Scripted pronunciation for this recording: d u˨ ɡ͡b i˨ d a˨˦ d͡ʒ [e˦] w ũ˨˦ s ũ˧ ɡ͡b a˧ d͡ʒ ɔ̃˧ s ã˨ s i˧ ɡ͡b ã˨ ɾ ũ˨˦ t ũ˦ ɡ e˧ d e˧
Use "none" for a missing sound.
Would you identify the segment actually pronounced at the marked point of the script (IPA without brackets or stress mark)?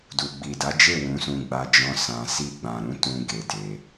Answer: e˦˨